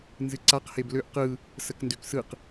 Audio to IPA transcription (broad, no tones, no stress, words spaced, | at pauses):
nzɨǀaq hebløʔ qɯ | səkndøksɯq